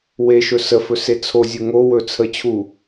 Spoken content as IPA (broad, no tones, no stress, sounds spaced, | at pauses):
w e ʃ ɵ s ə f ɵ s e t͡sʰ o zʲ u ŋ o w ɵ t͡sʰ ə t͡ɕʰ u